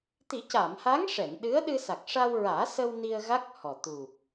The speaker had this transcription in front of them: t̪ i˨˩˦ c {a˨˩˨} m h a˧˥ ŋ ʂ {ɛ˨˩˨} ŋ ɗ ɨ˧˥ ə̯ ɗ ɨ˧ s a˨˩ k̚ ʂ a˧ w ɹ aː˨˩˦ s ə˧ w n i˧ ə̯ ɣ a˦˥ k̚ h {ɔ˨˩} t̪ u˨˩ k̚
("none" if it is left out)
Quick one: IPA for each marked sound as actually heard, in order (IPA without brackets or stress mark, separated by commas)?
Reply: a˨˩˨, ɛ˨˩˨, ɔ˨˩